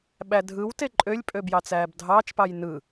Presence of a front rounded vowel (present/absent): present